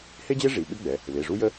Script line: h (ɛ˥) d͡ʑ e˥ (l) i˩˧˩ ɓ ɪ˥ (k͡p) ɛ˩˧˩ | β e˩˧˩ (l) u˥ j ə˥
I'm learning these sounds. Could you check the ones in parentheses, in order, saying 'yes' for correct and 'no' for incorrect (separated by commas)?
no, no, no, no